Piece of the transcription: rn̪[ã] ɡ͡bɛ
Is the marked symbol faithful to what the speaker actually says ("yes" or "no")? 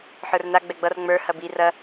no